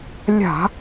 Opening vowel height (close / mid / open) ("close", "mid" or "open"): open